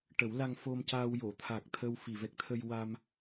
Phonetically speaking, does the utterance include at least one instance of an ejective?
no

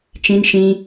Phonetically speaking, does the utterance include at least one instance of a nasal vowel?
yes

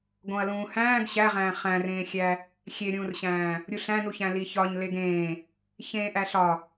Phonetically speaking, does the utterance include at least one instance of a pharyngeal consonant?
no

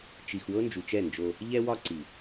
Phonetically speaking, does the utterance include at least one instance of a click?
yes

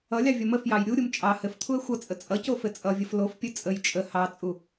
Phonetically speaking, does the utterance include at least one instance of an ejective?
yes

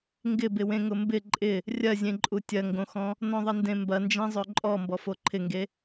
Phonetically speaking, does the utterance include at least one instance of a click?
yes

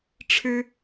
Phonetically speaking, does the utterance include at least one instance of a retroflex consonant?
yes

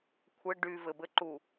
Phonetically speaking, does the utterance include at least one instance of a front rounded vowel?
yes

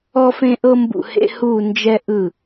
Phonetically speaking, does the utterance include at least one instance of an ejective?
no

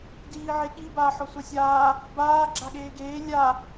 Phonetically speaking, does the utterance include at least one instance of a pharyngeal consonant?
yes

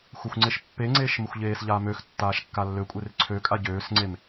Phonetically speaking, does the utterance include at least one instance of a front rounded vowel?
yes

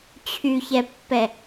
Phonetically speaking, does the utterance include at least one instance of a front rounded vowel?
yes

